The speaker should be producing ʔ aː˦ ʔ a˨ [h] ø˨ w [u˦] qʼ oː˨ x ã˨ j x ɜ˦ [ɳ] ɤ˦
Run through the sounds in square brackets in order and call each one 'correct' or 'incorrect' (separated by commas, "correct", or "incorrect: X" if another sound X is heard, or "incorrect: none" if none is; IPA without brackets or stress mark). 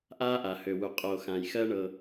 correct, incorrect: u˨, correct